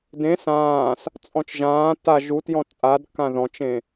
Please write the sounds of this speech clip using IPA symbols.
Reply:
d ẽ s ãː s | t͡sʼ ɔ̃ t͡ʃ ʒ ãː t a ʒ u t j ɔ̃ t͡sʼ a d k ã ð ɔ̃ t͡ʃ ẽ

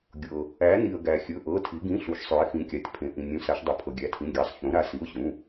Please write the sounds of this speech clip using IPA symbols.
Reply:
ɡʲ ɤ˩ | æ˩˧ n i˩ ə̯ ɡ æ˩ xʲ ɵ˩˧˩ ʔ ɤ˩˧˩ tʰ i˩˧ ɡ ĩ˩˧˩ ɬ u˩˧ ʃ sˤ ø˩˧ ɪ̯ x ĩ˩˧ kʲ a˩ tʲ pʰ ẽ˩ ʔ ĩ˩ nʲ ũ˩˧ s a˩˧ ʃ dˤ ɵ˩˧ pʰ ɤ˩ ɡʲ æ˩˧˩ tʰ ĩ˩˧˩ ɡʲ a˩˧˩ sˤ ç ũ˩˧ ɾ a˩˧ s i˩˧˩ ʊ̯ ɕ ũ˩˧˩

